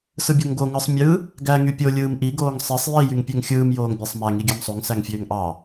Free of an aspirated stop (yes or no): yes